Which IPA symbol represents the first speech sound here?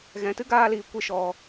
ɣ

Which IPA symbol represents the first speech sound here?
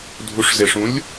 dʱ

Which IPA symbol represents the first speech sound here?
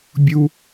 bʲ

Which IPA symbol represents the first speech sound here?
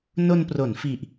n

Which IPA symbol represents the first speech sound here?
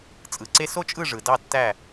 t͡sʼ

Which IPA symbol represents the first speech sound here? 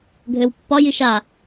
ɡʱ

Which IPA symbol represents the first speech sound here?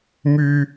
m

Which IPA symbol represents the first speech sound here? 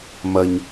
m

